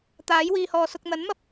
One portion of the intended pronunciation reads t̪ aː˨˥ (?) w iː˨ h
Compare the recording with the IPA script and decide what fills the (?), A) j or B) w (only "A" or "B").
A